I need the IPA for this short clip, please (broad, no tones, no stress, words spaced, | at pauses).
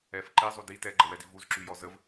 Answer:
ɛf ǃizˤu di tɛɡ͡ǃəwɛdi vuzǁyjɔ zəv